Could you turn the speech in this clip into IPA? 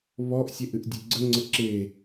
β ɔ ʔ sʲ e ʔ ɨ ʔ dʲ e ɡ͡ǀ ə ŋ͡ǀ ə ǁ e

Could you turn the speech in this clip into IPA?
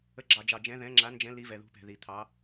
ə˨˦ ɡ͡ǁ ɑ˨ d͡ʒ ɑ˨ d͡ʒ ɛ̃˨˦ ð ɛ̃˨˦ ŋ͡ǁ a˨˦ n d͡ʒ ɛ̃˨˦ l i˨˦ v ɛ˨ ð ṳ˨˦ p ɛ̤˨ ð i˨ t̪ʰ ɑ˨˦

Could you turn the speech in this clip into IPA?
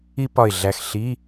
i˥ p ɒ˧˩ ɪ̯ ɮ æ˧˩ x ɬ i˧˥˧

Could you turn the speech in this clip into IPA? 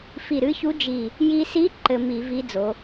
f i˧˩ ɾ ɨ˧˥ ç u˧˥ d͡ʒ i˧˩ | j i˧ s i˧˥ ǃ ɘ˧ m i˧˩˧ v i˧˥ d͡z o˩˧

